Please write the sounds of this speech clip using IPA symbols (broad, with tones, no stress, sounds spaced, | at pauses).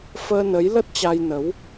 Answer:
f əː˧ n ə˨˦ j l ə˦˥ t̚ t͡ɕ a˧ j n ə˨˦ w